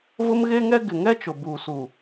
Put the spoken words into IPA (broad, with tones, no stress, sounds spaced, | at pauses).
v ʊ˦ m ɣ e˦ ŋ ɛ˦ ɡ ɪ˨ ŋ ɛ˦ t͡ʃ ʊ˨ b uː˨ s u˨